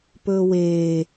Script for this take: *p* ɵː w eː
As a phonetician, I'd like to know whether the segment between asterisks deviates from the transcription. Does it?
no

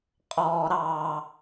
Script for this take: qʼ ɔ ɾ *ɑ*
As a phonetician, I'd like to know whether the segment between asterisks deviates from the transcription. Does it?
no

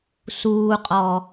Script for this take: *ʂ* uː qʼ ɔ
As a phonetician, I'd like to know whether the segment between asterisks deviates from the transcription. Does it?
yes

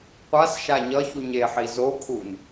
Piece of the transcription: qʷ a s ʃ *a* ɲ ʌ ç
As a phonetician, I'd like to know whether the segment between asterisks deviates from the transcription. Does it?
no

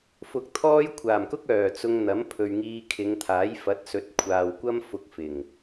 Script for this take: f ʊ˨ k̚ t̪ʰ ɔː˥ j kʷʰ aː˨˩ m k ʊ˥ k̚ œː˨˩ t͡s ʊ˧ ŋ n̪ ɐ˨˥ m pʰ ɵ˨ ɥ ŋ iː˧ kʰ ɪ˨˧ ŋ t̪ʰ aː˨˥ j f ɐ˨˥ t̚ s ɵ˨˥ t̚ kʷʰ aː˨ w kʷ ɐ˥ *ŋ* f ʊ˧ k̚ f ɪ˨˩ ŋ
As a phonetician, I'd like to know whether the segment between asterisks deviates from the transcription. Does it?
yes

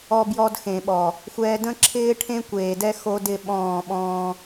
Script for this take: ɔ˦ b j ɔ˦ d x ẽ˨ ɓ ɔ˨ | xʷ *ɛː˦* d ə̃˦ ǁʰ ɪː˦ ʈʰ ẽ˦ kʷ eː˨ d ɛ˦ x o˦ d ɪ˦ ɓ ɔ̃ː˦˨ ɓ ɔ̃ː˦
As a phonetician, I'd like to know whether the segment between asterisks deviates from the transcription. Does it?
no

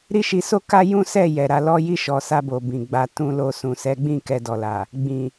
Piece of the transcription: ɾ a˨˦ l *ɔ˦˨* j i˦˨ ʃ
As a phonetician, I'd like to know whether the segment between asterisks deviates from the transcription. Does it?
yes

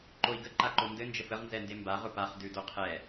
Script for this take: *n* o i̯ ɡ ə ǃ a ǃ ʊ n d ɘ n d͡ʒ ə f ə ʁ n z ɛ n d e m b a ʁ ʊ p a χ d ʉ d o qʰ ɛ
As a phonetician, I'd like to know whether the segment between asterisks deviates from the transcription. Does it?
yes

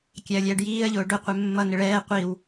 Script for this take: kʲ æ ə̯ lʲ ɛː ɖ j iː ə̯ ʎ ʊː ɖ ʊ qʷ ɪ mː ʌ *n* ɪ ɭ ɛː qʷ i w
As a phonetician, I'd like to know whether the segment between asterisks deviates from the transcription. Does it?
no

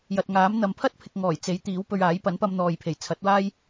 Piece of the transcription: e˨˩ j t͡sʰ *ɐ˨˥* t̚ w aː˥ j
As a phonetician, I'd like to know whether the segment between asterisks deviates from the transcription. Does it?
no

